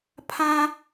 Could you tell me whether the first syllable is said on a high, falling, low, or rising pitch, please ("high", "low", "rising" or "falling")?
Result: high